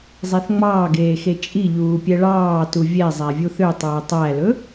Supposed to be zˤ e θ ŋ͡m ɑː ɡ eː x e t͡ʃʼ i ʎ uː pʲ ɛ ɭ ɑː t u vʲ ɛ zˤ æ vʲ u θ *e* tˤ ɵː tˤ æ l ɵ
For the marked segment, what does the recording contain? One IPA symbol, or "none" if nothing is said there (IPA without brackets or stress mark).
ø